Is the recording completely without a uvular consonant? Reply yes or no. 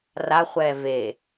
no